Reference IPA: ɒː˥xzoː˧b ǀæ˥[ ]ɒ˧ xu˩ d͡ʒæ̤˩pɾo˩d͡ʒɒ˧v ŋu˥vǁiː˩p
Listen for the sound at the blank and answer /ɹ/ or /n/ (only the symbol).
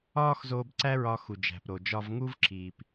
ɹ